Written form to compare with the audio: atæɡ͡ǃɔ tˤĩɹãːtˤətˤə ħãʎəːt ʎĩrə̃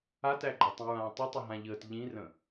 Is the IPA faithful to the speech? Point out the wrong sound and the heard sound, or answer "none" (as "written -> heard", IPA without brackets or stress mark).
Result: ħ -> ɦ